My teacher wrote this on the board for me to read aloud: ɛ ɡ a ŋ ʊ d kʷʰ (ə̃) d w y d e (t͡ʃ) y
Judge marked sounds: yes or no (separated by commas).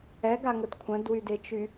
yes, yes